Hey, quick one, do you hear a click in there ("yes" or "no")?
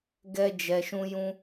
no